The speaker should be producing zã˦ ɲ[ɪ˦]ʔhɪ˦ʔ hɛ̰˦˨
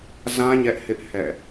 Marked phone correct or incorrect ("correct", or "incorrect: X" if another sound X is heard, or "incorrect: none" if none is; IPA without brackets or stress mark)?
incorrect: ɛ˦